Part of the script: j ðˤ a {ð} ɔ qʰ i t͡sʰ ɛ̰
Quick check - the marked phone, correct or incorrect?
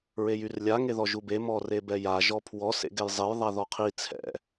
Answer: correct